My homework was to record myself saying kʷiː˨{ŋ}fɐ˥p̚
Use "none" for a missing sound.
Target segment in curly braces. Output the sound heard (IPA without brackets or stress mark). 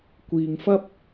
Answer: ŋ